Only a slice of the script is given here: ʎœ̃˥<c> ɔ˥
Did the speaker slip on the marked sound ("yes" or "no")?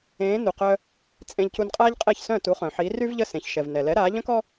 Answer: yes